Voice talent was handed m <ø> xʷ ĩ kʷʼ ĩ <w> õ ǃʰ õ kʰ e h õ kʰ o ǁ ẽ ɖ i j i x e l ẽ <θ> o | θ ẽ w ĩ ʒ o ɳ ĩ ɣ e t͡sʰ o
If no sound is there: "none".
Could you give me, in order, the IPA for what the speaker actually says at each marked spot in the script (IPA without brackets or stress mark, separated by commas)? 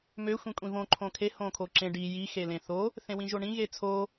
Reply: ø, v, θ